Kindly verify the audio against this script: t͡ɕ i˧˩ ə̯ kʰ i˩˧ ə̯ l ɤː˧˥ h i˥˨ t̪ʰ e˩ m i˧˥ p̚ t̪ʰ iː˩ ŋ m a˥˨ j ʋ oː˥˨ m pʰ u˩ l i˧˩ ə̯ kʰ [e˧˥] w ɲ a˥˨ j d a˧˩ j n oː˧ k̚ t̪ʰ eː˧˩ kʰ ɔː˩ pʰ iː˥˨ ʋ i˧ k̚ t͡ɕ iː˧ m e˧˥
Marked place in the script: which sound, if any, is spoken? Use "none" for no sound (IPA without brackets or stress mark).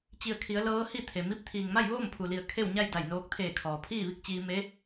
e˥˨